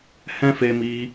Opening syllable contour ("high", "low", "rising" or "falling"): high